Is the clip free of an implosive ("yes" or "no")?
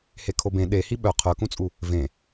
no